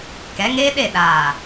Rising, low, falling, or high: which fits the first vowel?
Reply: rising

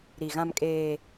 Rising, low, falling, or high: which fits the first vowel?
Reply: low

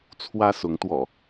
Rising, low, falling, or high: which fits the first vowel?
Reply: high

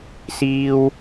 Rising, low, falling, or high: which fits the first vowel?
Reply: high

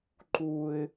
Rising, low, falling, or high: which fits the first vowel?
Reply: low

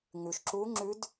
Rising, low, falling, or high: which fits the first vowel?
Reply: low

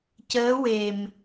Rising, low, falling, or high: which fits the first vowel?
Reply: rising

